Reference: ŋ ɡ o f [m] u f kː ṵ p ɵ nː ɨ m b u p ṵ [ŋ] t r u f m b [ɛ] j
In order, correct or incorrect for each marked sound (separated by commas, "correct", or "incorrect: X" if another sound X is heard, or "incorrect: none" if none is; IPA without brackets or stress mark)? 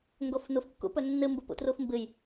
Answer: incorrect: n, incorrect: none, incorrect: ɨ